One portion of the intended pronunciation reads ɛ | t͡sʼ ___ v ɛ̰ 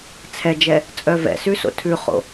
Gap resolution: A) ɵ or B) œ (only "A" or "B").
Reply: B